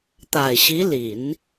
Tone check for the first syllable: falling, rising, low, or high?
low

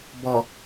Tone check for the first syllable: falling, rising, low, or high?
low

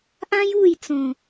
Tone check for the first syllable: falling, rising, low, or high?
high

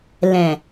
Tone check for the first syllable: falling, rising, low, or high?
low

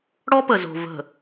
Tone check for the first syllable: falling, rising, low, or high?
high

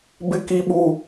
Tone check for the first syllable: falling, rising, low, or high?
high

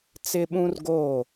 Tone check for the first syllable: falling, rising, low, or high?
high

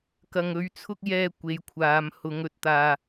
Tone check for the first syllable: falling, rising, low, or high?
low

